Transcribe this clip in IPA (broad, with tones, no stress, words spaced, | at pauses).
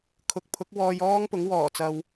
kʰʊ˨˥k̚pʰʊ˨˥k̚wɔː˧j ɔː˥ŋpʊ˨˥ŋ wɔː˨˩t͡sɐ˨w